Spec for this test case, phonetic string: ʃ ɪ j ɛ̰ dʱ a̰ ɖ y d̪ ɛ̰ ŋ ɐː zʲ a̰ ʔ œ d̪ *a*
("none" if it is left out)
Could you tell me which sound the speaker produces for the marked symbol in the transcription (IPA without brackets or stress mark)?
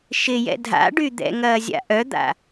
a̰